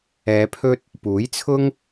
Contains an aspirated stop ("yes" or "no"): yes